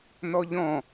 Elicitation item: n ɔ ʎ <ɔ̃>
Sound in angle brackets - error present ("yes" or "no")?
no